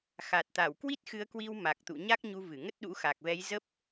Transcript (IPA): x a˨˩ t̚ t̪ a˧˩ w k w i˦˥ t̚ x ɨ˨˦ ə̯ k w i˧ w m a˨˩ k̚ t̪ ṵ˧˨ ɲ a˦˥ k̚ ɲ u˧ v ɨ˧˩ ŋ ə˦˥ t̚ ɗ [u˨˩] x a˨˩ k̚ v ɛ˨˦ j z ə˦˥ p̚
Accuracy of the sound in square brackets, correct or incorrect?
incorrect